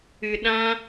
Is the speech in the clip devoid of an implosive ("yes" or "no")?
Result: no